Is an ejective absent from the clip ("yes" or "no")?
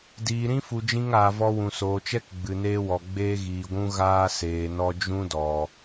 yes